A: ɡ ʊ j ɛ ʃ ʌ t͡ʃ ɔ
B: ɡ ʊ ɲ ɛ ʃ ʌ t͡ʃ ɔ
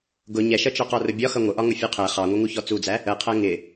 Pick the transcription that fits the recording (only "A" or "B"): B